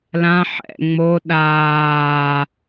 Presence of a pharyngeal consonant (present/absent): present